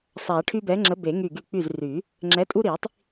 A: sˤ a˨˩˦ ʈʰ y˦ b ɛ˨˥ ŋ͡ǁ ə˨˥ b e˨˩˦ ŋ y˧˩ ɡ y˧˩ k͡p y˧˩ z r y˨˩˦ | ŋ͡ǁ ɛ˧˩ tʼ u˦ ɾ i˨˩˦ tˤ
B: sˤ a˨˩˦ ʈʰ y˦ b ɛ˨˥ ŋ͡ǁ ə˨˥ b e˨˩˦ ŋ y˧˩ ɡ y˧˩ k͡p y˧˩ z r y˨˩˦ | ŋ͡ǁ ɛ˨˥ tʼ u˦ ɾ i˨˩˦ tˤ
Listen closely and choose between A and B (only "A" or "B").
B